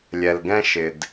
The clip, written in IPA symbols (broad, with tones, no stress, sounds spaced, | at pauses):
lʲ ɛ˨ l ɡ ɛ̃˦ ʃ ɪ˨ d